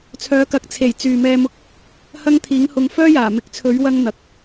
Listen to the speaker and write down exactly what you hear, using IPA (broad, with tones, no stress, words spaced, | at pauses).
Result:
t͡sʰœː˨˧kɐ˨k̚ t͡sʰe˨˩j t͡syː˨ mɛː˧mʊ˧k̚ | hɐ˥ŋt̪ʰiː˨˥ŋhʊ˧ŋ fœː˥jaː˨˩ mɪ˨˥k̚t͡sʰɵ˨˥ɥ wɐ˥ŋ n̪ɐ˨k̚